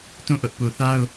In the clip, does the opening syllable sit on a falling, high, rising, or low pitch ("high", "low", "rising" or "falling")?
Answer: falling